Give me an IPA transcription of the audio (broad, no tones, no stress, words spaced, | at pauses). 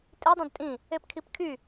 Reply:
tʼidˤẽd tʼĩ | epkʰipkʰy